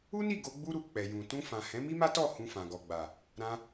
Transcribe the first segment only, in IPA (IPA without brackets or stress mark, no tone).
u